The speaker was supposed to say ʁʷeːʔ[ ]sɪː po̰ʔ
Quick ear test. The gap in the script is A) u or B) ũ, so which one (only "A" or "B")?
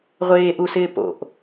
A